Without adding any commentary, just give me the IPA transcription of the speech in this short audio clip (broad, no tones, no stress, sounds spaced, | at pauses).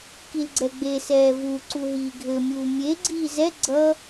k i l ɡ͡ǀ ɛ ɡ͡b e s ɛː v u ǀ u ɦ iː ɡʱ ɘ mʲ uː mʲ e ɡ͡ǀ iː z ɛ ɡ͡ǀ ʌ